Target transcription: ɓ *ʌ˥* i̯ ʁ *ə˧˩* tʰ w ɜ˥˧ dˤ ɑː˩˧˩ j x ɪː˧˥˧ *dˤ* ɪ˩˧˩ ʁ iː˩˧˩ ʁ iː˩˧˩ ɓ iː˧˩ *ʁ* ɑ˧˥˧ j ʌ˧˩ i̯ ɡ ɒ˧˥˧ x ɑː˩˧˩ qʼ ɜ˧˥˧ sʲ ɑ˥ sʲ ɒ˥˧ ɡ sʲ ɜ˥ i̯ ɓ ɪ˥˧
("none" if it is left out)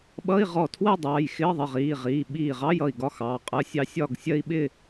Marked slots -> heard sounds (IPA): ʌ˧˥˧, ɔ˧˩, ðˤ, ʁ

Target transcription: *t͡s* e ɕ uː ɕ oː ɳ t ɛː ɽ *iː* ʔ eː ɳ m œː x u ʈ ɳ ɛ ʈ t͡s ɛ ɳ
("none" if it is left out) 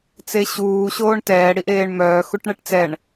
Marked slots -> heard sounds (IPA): t͡s, i

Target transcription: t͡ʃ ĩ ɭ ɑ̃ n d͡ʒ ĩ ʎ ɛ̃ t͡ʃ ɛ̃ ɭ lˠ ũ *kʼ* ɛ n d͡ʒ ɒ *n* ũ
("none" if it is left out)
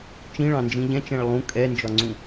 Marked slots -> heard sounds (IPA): kʼ, ŋ͡ǀ

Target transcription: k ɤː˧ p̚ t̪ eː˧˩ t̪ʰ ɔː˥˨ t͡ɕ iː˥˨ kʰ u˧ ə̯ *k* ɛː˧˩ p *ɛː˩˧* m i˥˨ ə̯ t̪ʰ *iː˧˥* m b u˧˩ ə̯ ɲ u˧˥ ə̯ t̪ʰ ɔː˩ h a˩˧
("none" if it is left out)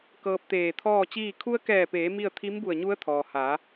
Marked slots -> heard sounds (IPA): k, eː˩˧, i˧˥

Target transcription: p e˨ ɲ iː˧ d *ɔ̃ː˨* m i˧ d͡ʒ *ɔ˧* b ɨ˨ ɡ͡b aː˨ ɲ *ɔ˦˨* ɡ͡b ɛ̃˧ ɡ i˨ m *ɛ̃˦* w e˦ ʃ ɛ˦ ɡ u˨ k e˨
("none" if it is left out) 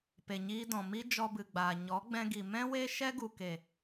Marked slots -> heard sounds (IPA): ɔ̃˨, ɔ˧, ɔ˨˦, ɛ̃˦

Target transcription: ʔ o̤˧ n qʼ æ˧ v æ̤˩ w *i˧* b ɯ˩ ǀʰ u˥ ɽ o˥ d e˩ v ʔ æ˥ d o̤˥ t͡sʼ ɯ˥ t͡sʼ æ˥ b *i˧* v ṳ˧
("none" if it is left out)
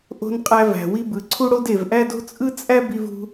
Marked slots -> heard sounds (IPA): i˧, i˧

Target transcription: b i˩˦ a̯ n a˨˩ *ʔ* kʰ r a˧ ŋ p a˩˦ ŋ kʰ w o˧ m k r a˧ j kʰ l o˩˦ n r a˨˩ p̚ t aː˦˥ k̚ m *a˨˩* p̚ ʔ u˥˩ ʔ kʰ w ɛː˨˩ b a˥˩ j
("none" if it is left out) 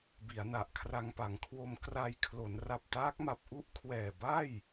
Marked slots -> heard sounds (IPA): ʔ, a˨˩

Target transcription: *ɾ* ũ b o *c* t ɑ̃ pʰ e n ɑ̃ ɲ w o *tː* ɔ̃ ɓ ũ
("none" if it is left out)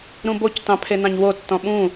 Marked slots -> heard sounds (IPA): ɾ, c, tː

